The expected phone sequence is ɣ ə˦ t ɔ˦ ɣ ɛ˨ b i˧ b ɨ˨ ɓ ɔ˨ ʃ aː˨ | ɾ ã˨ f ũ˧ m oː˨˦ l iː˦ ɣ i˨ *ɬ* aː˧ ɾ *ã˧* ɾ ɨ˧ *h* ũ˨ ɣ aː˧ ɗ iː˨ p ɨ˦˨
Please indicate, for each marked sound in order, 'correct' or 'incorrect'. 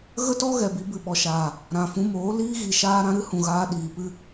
incorrect: ʃ, correct, correct

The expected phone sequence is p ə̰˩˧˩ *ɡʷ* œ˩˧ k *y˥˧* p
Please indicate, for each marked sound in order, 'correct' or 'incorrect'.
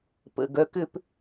incorrect: ɡ, incorrect: ʏ˥˧

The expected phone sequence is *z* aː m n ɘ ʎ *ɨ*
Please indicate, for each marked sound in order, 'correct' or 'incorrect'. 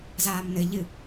correct, correct

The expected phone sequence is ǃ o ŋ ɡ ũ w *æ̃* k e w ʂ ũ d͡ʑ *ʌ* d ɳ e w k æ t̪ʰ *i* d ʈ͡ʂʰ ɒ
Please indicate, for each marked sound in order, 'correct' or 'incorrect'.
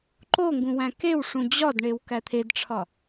correct, incorrect: ɒ, incorrect: e

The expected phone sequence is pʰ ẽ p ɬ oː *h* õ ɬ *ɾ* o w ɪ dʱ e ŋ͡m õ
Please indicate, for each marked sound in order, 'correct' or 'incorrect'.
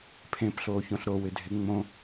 incorrect: ç, correct

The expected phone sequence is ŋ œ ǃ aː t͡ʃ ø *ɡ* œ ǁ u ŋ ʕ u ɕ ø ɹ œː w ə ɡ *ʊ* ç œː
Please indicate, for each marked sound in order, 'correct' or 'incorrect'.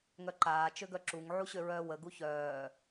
correct, incorrect: u

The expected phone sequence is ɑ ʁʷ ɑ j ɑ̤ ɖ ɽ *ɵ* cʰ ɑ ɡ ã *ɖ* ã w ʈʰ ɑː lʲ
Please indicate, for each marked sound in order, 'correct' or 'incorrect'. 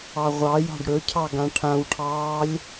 correct, incorrect: ʈʰ

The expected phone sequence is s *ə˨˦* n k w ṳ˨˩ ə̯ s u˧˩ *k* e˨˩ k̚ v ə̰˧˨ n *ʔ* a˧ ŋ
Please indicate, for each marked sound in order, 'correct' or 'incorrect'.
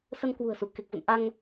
incorrect: ə˧, correct, correct

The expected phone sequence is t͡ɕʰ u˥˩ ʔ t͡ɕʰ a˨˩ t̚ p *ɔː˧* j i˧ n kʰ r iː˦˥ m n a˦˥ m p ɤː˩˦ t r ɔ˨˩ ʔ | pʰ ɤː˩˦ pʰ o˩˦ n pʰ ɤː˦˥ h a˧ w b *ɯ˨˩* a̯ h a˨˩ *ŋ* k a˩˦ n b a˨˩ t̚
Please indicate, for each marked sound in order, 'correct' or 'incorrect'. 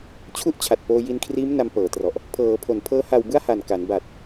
incorrect: oː˧, incorrect: ɯ˥˩, incorrect: n

